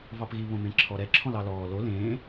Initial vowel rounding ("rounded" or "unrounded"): unrounded